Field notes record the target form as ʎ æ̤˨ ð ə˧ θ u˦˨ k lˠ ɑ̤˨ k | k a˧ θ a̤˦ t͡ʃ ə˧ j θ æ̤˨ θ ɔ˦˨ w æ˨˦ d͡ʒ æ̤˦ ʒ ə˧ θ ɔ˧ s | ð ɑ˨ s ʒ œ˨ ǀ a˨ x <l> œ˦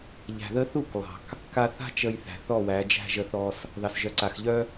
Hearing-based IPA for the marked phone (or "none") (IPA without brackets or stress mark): ʎ